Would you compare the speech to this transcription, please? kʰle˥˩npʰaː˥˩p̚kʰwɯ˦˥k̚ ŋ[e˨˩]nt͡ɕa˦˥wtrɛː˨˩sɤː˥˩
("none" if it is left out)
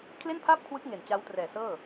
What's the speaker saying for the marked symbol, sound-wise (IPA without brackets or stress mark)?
e˨˩